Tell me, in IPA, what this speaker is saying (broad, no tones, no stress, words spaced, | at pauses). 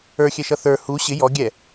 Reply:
ə˞xʲɛʃʌ θə˞ hu ɕɪ jɔ ɡʲɛ